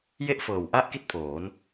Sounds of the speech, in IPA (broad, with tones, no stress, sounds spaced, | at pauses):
j e˥˩ ʔ f ɤː˨˩ w ʔ a˥˩ ʔ k i˥˩ t̚ pʰ oː˩˦ n